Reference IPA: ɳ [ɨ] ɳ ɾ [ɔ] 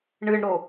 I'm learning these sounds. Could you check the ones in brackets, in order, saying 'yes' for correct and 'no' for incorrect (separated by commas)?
yes, no